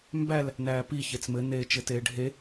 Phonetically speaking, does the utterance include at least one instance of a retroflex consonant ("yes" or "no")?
yes